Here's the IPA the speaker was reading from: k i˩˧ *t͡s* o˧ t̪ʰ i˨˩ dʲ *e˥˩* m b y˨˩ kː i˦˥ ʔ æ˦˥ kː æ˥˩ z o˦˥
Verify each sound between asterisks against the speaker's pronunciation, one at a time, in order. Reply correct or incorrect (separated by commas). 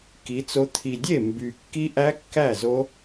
correct, correct